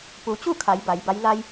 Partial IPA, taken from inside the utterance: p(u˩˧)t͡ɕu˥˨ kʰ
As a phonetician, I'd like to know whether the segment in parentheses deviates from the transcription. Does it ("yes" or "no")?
no